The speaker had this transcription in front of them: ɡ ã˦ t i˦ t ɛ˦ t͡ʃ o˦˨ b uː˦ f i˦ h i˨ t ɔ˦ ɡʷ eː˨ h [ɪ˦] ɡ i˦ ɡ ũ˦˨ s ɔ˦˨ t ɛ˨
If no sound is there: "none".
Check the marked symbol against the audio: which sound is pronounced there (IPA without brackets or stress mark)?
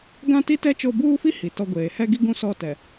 ɛ˦